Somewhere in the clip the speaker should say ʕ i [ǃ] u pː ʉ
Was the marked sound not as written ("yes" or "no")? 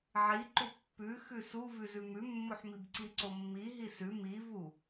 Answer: no